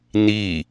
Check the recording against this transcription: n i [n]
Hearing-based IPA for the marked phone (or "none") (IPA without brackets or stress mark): none